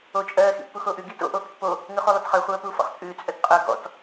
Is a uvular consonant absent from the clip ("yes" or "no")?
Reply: no